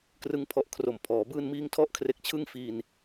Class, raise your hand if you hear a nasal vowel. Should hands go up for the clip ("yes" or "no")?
no